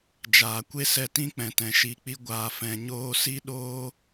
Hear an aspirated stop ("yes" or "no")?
no